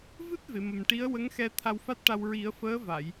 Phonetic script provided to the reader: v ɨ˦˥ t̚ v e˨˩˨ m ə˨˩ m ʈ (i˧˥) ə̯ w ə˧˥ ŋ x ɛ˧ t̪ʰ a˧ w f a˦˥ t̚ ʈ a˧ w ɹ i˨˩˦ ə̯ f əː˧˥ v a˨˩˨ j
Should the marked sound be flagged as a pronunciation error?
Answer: no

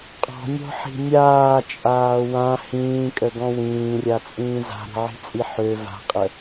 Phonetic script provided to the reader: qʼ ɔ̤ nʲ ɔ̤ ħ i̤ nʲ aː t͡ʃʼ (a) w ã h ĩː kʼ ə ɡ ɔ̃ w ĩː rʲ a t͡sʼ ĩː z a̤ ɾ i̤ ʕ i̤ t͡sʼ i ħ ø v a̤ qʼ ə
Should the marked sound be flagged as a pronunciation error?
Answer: yes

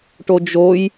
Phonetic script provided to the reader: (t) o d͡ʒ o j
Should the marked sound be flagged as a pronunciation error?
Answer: yes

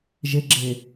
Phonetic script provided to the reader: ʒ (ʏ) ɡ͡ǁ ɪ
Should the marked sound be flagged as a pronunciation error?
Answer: yes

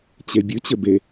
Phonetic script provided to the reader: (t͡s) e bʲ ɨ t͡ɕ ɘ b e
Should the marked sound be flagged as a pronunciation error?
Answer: yes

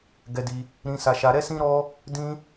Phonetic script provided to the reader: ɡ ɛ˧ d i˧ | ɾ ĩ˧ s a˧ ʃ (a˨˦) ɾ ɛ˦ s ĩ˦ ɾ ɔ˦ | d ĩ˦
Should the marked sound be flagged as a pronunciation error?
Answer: yes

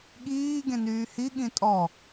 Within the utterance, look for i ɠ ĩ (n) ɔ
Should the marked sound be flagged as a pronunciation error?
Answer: yes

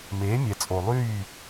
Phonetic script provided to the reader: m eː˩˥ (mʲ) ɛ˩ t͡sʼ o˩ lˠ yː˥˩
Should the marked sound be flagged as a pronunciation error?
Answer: no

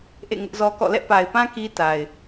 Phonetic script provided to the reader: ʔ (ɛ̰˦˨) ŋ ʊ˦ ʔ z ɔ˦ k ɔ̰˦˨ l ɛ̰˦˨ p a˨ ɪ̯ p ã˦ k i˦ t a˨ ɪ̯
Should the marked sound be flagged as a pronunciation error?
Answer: yes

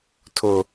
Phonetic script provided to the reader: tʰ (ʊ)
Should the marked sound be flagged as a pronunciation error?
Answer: no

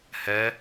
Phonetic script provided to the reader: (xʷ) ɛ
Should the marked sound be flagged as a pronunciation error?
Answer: yes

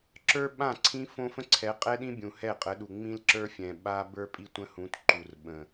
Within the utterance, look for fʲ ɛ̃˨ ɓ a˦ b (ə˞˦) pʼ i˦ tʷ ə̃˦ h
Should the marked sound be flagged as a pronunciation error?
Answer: no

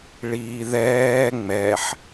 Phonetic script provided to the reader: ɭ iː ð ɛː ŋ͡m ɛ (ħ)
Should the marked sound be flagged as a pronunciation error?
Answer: no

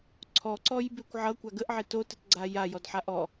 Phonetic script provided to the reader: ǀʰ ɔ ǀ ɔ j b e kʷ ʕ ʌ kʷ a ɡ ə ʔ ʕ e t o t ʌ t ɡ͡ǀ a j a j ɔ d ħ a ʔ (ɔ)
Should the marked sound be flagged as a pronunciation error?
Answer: no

